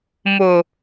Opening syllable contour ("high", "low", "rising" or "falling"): low